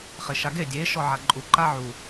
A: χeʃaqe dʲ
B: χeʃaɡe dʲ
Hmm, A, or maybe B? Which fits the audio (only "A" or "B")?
B